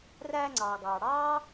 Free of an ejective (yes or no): yes